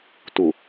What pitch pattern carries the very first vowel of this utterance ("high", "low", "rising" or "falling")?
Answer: low